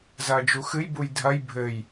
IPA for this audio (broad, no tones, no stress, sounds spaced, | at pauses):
z ɐː d͡ʒ u x ɨ j b u j dʱ ɐ j bʱ ɘ j